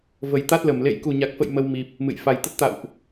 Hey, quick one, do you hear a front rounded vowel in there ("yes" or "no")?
no